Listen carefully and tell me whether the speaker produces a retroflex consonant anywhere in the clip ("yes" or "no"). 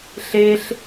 no